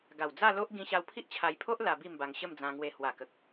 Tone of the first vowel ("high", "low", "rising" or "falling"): low